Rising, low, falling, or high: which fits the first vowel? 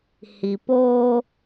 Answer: low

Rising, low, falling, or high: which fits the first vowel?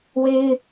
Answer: high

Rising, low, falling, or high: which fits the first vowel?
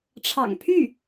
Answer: low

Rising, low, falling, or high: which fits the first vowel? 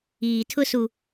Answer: low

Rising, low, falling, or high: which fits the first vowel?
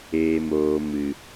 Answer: low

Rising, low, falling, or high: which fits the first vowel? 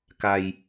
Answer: low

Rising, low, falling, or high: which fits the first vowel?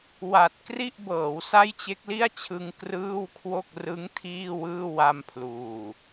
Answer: low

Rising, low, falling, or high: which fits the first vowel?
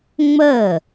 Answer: falling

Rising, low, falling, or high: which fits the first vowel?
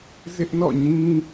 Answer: high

